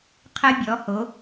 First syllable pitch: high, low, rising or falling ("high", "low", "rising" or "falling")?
high